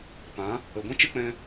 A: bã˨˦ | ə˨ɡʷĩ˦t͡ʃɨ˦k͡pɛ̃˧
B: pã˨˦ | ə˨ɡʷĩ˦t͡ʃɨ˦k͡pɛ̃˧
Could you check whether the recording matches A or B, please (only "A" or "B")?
B